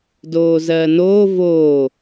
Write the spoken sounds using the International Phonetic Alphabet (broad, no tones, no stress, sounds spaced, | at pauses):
d oː z ɜː n oː v oː